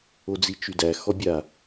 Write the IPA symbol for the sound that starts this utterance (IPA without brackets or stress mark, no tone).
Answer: o